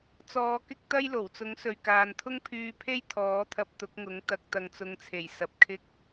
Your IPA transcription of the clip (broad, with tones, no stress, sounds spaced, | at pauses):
t͡s ɔː˨˧ k ɪ˥ k̚ t̪ ɐ˥ j l o˨˩ w t͡s ʊ˨˥ ŋ s ɵ˨ ɥ k aː˨ n t̪ʰ ʊ˥ ŋ pʰ yː˧ pʰ e˥ j t̪ʰ ɔː˨˥ t̪ʰ ɐ˧ p̚ t̪ ʊ˨˥ k̚ ŋ ʊ˨˥ ŋ t̪ ɐ˨ k̚ t̪ ɐ˨ ŋ t͡s ʊ˨˧ ŋ t͡sʰ e˨˩ j s ɐ˨ p̚ kʰ ɪ˥ k̚